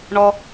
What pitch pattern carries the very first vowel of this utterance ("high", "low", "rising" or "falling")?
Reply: high